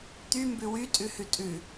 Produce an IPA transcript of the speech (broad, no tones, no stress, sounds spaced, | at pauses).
t̪ y m b ʉ w y tʼ ʉ h ʉ tʼ ʉ